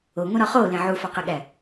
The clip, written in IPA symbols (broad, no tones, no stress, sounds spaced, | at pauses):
o ŋʷ ĩ ɾ ɒ χ o l ẽ ʕ u f ɒ q e ɠ æ